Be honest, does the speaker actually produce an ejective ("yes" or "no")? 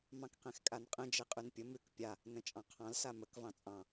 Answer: yes